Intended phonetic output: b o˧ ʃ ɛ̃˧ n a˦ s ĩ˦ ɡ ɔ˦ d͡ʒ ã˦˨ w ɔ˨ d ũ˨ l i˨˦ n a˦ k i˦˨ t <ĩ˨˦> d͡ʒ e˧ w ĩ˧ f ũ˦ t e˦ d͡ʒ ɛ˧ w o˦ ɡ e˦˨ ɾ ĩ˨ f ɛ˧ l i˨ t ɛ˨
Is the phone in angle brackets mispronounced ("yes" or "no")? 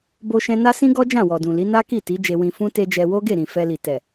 yes